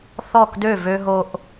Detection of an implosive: absent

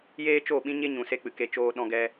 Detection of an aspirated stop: absent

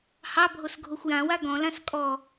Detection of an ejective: present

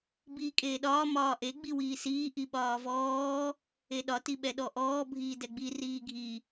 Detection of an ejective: present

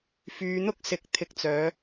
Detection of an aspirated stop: present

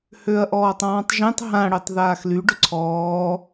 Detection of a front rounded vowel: present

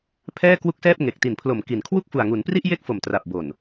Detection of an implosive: absent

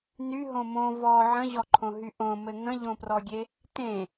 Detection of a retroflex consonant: absent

